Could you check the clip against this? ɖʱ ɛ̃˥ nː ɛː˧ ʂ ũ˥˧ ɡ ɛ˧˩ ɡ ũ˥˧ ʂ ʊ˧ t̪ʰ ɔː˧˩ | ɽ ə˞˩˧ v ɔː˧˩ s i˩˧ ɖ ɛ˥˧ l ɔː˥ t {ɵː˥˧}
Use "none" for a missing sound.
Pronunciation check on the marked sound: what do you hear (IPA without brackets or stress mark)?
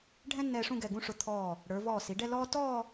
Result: ɔː˥˧